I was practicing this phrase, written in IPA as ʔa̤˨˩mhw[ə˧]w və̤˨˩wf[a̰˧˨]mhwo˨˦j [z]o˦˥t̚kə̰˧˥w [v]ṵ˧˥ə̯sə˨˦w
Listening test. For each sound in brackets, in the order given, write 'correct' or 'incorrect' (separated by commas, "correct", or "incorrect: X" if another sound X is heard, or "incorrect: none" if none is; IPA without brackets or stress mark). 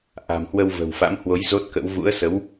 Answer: correct, incorrect: a̰˧˥, correct, correct